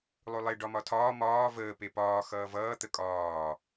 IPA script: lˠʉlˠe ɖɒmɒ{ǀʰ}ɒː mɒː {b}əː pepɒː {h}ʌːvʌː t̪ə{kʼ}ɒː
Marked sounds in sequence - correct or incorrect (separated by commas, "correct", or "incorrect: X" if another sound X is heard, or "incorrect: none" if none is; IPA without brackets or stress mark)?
incorrect: tʰ, incorrect: v, incorrect: x, correct